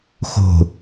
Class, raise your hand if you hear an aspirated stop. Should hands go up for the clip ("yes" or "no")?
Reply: no